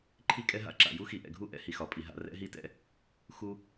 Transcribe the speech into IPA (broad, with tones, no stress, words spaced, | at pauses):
ǃʰi˦kʼɛ˦ɦa̰˦ ǁa̰˨ju˦ xi˨ʔɛ̰˨ɡʱu˦˨ ʔɛ̰˦hi˨xɒ˨pʼi˨ ɦa̰˧rɛ̰˦ɦi˦tɛ̰˦ | xu˦